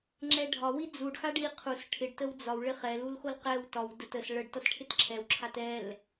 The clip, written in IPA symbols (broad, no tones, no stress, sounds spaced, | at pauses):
ŋ͡ǁ ɛ ɖʱ ɒ w i d͡z u ɖ x a ɖ i qʰ u s ʈʰ ɪ ɖ t ə w d͡z ɒ w ɭ ɪ χ ɛ l u l x o l q ɛ w t ɒ w d ə t ə s ɭ ə ɖ t ʌ t ʈʰ ɪ t ǁʰ ɛ w ǁʰ a t ɛ l